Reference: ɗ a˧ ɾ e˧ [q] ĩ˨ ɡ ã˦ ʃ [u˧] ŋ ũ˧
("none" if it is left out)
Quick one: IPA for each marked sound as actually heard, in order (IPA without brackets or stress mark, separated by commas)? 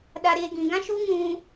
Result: ɡ, u˦